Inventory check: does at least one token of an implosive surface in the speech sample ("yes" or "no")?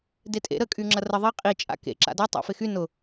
no